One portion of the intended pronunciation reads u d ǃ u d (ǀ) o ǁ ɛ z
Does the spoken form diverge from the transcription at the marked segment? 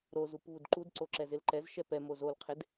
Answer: no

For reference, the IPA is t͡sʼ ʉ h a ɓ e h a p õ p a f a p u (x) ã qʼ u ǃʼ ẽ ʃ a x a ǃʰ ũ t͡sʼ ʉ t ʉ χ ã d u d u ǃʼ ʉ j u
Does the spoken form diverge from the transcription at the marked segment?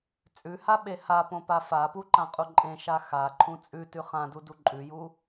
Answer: yes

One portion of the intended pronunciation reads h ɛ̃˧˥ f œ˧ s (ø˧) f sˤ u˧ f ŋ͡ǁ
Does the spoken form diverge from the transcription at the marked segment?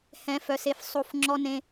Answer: yes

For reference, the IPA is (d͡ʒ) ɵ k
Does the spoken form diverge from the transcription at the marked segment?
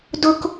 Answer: yes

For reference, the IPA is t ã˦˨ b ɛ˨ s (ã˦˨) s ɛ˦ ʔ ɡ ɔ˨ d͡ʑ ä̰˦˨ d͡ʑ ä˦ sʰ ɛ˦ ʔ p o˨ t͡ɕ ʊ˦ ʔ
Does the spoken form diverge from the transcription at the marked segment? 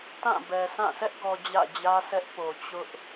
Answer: no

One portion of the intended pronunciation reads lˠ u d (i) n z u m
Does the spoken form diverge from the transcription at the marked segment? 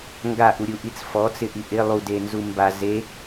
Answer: yes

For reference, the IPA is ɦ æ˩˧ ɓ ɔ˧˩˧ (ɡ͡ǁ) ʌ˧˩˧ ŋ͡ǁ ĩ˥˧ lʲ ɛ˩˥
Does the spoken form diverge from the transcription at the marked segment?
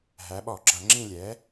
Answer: no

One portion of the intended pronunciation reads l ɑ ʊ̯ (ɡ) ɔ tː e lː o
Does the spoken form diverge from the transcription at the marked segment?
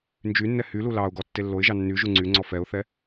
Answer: no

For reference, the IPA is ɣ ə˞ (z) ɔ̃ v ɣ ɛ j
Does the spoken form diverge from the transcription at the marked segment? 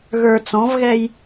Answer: yes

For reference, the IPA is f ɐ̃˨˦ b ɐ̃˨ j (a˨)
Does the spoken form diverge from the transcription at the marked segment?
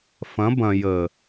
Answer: yes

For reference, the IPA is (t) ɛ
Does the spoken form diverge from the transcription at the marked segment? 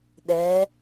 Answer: yes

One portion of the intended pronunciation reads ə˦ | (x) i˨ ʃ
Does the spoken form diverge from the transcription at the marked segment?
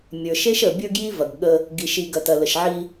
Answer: yes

